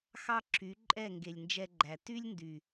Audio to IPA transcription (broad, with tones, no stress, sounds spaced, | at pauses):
x ɑ˦ ǁʰ y˨˦ ǃʼ ɛ˦˨ ŋ ɡ e˨ lʲ n d͡ʒ ɛ˧ ɡ͡ǃ æ˨ t y˦ lʲ n d y˨